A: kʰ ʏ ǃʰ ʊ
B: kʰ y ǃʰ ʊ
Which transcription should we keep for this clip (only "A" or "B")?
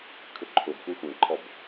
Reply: A